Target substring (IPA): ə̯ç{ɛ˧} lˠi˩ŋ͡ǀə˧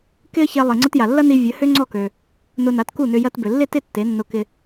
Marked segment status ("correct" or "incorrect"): correct